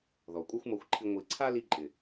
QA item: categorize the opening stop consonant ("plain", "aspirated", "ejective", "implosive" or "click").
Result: ejective